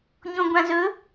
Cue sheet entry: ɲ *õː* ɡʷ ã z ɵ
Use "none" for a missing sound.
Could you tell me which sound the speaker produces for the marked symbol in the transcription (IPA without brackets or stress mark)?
õ